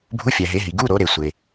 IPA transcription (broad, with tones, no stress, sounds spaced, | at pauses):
bʱ u˧˥˧ fʲ æ˨ ɦ e˨˦ ɦ i˨ ɡ u˧˥˧ ɾ o˨˦ ɾ e˨ sʷ e˨